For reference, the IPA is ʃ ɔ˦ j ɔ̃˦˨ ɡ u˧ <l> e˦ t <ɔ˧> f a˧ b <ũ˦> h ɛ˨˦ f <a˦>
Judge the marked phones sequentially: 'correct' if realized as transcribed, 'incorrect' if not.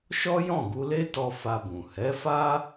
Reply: correct, correct, incorrect: ũ˨, correct

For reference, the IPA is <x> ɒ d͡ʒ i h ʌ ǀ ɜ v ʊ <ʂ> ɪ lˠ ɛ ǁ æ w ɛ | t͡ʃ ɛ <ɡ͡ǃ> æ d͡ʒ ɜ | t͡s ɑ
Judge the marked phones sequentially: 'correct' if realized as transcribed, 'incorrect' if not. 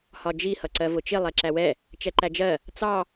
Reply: incorrect: h, incorrect: t͡ʃ, incorrect: ǃ

